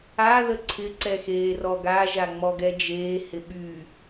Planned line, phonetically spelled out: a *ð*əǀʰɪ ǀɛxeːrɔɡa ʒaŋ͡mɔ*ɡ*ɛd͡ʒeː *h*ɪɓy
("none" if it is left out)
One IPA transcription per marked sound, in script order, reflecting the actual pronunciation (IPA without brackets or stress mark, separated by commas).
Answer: ð, ɡ, h